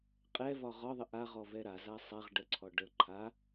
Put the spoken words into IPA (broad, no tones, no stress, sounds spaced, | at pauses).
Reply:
qʼ ɛ v ɒ ʁ ɒ ðˤ ə ʔ a ʁ ɔ v ɛ ɾ a z a sˤ a ʁ ɖ ə ǀʰ ɔ ɖ ə ǃʰ a